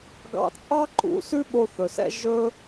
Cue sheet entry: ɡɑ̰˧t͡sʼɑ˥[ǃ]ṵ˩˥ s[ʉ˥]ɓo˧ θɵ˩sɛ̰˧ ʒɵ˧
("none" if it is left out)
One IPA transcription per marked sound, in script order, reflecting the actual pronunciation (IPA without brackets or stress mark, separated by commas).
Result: ǃ, ʉ˥